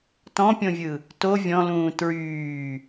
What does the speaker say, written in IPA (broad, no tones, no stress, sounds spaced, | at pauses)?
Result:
t ɔ̃ pʲ õ vʲ ɯ | t o vʲ ɔ̃ l ũː t ɹ yː